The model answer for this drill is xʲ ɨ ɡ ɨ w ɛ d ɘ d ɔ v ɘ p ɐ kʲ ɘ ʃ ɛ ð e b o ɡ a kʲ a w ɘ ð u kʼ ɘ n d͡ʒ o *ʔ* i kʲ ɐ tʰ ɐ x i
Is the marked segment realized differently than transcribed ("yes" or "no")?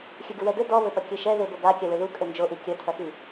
no